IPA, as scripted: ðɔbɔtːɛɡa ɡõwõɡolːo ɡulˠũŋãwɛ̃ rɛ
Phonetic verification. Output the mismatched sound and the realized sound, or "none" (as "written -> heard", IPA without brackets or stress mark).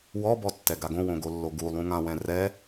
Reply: ð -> w